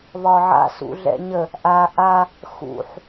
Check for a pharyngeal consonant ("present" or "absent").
present